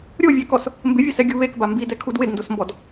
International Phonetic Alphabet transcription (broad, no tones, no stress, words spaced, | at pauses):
ɾʲovʲɛkɔs | mbɪvʲʊsɛ ɡʲuβekba mbidɛ kʰudwɪdndosmbɔd